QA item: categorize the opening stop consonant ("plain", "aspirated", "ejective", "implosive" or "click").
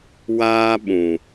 implosive